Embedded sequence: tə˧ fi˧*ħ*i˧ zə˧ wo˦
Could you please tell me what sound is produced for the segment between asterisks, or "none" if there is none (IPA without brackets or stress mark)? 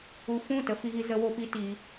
ɣ